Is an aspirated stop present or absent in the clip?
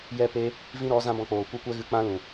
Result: absent